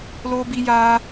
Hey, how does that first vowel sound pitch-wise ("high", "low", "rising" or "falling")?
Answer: high